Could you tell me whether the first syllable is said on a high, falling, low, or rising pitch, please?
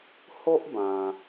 high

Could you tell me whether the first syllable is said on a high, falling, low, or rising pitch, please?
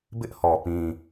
high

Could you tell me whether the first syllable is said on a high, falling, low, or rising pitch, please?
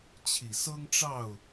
low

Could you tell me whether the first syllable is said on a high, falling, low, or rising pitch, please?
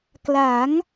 rising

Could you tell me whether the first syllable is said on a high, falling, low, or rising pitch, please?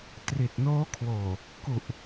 low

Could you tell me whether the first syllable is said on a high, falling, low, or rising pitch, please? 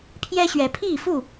high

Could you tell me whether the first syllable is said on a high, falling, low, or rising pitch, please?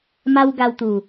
high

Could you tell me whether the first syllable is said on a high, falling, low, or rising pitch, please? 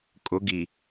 rising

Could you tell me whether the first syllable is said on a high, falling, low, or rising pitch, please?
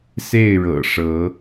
falling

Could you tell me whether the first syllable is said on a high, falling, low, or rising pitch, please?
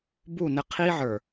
falling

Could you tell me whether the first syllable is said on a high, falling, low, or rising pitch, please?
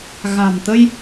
low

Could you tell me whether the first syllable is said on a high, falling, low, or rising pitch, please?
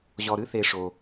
low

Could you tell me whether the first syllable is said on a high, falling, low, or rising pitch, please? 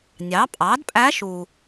rising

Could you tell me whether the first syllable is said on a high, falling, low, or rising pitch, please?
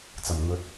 low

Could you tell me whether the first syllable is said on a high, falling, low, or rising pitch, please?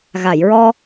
low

